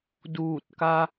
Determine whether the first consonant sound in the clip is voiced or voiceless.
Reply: voiced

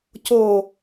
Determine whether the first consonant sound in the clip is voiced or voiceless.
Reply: voiceless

